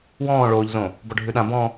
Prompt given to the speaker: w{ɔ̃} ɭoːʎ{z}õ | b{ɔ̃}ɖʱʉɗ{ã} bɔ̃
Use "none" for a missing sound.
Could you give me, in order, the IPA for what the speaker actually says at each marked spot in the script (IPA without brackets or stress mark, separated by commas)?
ɔ̃ː, z, ɔ, ã